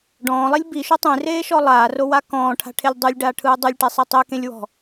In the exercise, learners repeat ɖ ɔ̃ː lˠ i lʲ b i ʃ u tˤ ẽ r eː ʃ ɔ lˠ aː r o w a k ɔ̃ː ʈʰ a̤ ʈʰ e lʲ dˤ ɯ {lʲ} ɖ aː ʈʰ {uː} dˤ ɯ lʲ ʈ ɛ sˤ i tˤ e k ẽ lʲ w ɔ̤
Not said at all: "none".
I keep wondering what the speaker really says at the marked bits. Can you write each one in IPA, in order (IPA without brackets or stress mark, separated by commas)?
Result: lʲ, ɯː